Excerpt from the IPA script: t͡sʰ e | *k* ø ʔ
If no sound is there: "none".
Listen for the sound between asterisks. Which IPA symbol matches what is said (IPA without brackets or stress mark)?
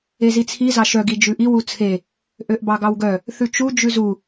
ʔ